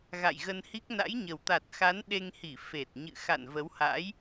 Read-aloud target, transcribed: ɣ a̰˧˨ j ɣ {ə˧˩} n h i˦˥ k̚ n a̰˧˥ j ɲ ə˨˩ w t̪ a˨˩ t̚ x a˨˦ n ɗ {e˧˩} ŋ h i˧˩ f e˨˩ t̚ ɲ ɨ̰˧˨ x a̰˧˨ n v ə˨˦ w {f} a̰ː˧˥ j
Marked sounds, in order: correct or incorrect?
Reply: incorrect: ə˧, incorrect: e˧, incorrect: h

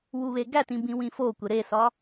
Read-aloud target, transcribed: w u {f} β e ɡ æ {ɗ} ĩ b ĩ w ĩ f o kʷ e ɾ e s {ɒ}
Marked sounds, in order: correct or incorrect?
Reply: incorrect: none, incorrect: t, correct

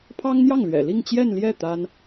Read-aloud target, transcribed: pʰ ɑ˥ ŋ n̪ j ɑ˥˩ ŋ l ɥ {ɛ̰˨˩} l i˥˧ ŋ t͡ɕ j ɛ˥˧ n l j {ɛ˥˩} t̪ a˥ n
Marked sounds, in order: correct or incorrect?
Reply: correct, correct

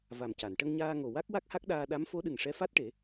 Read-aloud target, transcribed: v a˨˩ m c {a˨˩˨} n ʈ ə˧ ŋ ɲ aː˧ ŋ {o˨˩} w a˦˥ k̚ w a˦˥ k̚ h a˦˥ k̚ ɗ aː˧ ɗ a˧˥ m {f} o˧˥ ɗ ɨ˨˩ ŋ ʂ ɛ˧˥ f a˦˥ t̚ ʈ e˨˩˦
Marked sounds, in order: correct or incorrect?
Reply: correct, correct, correct

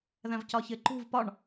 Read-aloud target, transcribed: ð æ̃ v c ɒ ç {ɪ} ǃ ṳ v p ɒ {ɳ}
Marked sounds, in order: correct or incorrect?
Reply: correct, correct

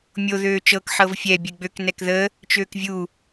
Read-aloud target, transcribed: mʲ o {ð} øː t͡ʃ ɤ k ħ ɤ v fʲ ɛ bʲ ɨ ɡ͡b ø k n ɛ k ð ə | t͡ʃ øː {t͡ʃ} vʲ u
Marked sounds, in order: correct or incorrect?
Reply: correct, incorrect: k

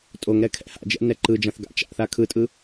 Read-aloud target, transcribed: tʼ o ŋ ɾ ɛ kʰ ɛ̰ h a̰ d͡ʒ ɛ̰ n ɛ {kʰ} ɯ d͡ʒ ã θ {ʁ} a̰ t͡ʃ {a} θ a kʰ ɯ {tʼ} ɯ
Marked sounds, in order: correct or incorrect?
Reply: incorrect: ǃ, incorrect: ɡ, incorrect: a̰, correct

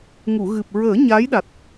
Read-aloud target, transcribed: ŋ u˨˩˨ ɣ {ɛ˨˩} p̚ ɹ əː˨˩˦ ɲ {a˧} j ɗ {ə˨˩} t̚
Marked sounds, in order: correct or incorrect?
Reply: incorrect: ɨ˨˩, incorrect: a˧˥, incorrect: a˨˩

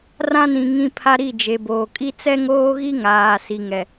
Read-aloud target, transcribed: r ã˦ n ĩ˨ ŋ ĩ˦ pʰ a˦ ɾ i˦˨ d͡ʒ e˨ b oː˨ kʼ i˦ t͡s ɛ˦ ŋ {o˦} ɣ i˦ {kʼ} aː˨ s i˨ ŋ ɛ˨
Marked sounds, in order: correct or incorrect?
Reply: incorrect: oː˦, incorrect: ŋ

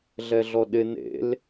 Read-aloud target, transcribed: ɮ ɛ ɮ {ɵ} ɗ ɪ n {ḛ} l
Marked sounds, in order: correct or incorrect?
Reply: incorrect: ɔ, correct

